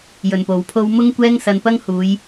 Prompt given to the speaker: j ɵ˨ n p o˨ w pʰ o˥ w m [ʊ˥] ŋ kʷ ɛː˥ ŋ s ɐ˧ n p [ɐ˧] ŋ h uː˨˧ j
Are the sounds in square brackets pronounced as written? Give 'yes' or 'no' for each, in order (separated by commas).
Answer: yes, no